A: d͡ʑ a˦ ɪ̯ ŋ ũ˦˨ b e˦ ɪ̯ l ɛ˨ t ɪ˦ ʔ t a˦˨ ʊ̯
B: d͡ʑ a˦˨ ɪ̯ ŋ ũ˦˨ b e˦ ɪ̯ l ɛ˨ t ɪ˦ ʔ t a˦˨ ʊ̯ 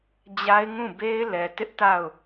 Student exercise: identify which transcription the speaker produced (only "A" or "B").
A